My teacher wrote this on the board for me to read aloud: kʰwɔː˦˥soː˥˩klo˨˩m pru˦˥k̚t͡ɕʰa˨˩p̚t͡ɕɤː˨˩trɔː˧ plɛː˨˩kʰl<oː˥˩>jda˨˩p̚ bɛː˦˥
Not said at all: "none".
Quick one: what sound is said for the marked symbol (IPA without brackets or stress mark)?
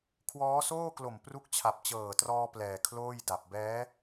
oː˥˩